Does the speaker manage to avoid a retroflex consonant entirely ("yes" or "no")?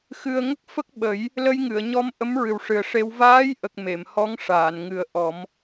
no